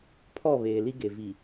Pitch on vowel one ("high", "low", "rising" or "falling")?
falling